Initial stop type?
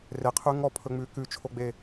aspirated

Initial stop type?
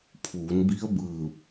aspirated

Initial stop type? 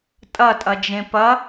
ejective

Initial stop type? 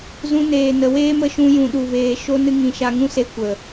implosive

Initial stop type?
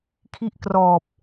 aspirated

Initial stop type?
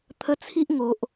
aspirated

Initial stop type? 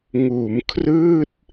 aspirated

